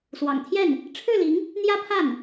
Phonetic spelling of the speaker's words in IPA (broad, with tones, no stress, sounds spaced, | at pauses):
s w ɑ̰˨˩ ŋ t̪ʰ j ɛ˥˩ n | ʈ͡ʂʰ ɻ̩˥˩ l i˧˥ ŋ | n̪ j ä˥ pʰ a˥˩ n